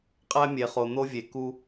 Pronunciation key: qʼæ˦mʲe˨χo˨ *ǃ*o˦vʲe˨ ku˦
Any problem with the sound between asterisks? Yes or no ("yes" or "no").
yes